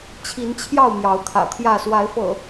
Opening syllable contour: rising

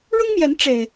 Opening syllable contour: high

